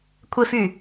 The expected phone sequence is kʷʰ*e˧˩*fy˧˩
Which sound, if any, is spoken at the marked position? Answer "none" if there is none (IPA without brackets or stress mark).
e˧